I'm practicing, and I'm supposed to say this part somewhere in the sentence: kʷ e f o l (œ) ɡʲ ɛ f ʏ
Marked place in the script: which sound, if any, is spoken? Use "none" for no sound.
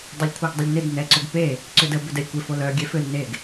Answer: œ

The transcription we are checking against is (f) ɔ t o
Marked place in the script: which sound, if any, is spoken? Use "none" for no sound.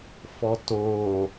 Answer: f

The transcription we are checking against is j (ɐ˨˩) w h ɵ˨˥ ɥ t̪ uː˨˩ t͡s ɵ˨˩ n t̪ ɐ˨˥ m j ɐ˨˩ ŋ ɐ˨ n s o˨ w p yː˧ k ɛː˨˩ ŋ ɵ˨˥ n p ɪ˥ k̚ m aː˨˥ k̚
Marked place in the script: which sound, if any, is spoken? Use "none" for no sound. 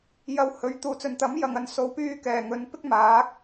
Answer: ɐ˨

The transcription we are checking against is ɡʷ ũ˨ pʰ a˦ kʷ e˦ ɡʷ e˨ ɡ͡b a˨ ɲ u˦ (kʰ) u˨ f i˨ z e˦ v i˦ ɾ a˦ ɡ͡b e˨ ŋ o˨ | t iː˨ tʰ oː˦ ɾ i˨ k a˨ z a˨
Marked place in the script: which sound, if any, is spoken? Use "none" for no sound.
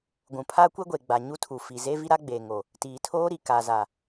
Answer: tʰ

